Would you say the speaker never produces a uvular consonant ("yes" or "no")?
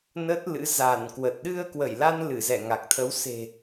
yes